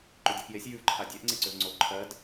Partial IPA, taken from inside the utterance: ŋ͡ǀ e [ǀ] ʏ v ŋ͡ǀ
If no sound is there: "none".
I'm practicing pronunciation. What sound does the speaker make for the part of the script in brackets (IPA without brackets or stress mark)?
ǀ